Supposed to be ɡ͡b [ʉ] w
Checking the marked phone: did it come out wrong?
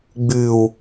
no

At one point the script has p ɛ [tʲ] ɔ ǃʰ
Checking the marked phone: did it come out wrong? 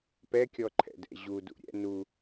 yes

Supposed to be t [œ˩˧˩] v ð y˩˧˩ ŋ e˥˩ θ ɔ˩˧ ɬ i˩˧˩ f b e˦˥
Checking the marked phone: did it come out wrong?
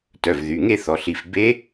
no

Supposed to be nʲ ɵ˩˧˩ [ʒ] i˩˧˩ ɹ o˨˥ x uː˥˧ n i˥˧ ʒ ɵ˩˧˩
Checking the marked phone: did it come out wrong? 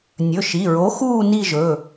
yes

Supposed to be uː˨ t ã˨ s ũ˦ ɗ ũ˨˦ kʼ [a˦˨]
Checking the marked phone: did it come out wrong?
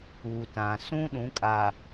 yes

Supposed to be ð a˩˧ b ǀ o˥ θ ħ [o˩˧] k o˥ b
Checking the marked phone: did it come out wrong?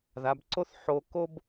yes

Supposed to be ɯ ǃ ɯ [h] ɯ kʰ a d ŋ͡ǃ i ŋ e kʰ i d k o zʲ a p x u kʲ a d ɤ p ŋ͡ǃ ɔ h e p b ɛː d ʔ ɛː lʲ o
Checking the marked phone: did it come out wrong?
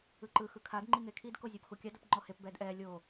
yes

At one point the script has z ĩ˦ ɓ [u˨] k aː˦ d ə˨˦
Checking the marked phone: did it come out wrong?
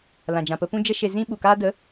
no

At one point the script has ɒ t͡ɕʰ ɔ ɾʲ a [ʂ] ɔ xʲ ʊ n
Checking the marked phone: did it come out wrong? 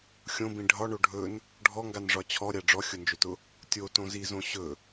yes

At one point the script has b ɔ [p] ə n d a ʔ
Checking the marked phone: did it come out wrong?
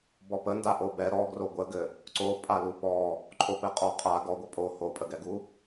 no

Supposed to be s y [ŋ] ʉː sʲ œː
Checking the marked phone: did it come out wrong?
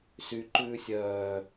yes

